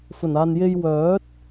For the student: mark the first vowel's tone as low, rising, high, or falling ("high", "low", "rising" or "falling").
low